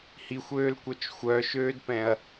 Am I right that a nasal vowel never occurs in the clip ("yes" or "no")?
no